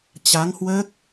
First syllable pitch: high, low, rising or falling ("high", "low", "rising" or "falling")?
rising